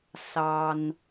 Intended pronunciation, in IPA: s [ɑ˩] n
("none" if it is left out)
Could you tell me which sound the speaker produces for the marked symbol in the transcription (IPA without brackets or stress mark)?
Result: ɑ˩